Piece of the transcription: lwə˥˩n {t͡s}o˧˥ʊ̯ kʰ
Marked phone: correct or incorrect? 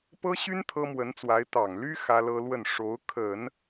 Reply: incorrect